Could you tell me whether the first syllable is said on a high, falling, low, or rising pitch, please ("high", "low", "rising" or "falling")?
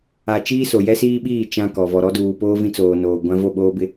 low